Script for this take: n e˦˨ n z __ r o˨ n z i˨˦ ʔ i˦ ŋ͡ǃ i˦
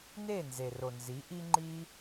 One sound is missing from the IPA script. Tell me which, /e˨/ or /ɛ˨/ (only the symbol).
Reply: e˨